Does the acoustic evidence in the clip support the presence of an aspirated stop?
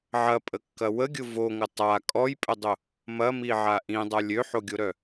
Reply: no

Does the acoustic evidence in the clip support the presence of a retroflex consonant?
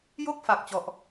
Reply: no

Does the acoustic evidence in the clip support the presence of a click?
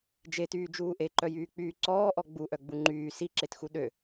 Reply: yes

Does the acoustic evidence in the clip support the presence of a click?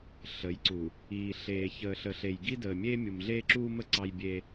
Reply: yes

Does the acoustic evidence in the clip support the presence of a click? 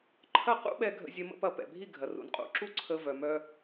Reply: yes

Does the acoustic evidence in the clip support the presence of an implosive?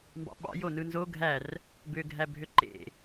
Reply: yes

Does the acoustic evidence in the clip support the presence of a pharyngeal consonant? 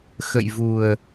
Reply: no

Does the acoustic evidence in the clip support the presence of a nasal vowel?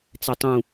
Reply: yes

